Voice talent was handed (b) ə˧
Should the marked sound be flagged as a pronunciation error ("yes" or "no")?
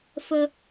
yes